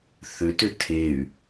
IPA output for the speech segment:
θʏtʏ tʰey̯

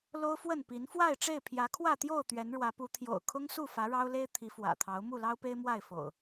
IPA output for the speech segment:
lo˦ʊ̯fwə˥˨npi˨˦n fwa˥˨ɪ̯ʈ͡ʂe˥˨ɪ̯ pʰjä˨˦kʰwä˥˨t̪jo˥˨ʊ̯ t̪ɥɛ˨˦nɻwä˨˦pu˨˦ t̪ʰjo̰˨˩ʊ̯kʰʊ˦ŋsu˥˨ fä˨˦ɻɑ˦ʊ̯le˦ɪ̯ t̪ʰi˨˦fwä̰˨˩t̪ʰɑ˨˦ʊ̯ mu˥˨lɑ˦ʊ̯pe˦ɪ̯ mwa˥˨ɪ̯fo̰˨˩ʊ̯

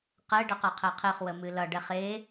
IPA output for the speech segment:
qɛ ɖəqʌqʰɛqʰeχ wəmɨlʌ ɖɛχe

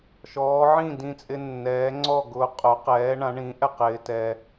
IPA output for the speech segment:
ʃɔː˩˥ʕĩ˥˩dĩ˧t͡sʼɪ˧ nːɛː˩˥ŋ͡ǀɔ˥˩ɡʊː˧ qʼʊ˩˥qɛː˩˥ ɳã˩˥ɳĩː˩˥ʔɛ˩qɪː˧ tɛ˧

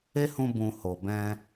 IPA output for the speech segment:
e˦hũ˧bũ˨ ho˨ bɛ̃˧

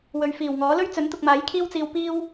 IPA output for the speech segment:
wɵ˨ɥfiː˨˩wŋɔː˨˥ lɵ˥ɥt͡sɵ˨˥nt̪ʊ˨k̚maː˨˥j kʰiː˥wt͡siː˧w piː˥w

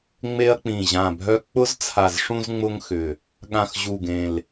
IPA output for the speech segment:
ŋ͡me˧ɐ̯k͡pĩ˨˩ʑã˨˩bʱœ˧ k͡pʊ˧z t͡sʰa˨˩zʂũ˧zŋ͡mʊ˧ŋxʏ˨˩ | ɠã˨˩xʑu˨˩ɡẽ˨˩l

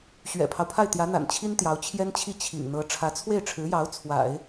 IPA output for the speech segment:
ɕɥɛ̰˨˩pʰɑ˦ʊ̯pʰa˥˩ɪ̯ t̪jä˧˥n̪a̰˨˩n t͡ɕʰi˥nt̪jɑ˧˥ʊ̯t͡ɕʰjɛ˥nt͡ɕʰi˥˩ t͡ɕʰḭ˨˩ŋn̪ɤ˧˥ ʈ͡ʂʰä˧˥t͡sʰwe˥˩ɪ̯ʈ͡ʂʰɻ̩˧˥jɑ˧˥ʊ̯ t͡sʰwa̰˨˩˦ɪ̯

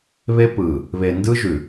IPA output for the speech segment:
βe˦pɯ˨ | βe˨ndɯ˦ʒʉ˨

